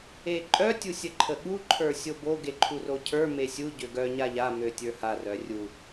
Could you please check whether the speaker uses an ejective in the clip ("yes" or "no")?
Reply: yes